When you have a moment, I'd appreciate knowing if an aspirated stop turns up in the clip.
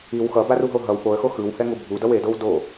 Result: no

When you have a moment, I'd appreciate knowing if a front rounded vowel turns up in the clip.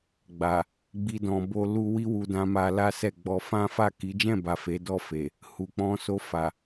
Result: no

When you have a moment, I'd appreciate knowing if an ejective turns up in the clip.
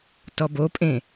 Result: yes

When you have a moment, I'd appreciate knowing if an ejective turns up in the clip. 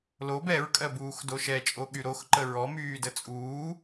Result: yes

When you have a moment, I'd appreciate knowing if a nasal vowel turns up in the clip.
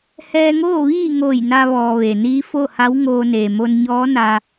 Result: no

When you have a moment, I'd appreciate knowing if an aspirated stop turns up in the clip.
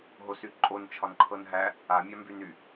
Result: yes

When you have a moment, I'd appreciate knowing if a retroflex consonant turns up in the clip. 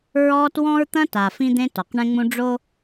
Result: yes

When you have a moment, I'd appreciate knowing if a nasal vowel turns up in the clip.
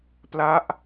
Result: no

